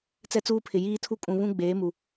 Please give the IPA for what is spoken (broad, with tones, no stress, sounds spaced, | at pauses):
t͡s ɛ˦ t͡s uː˦ pʰ ɪ˨ j iː˦ tʰ u˦ kʼ ũ˨ β ũ˦ ɡ͡b eː˨˦ m u˨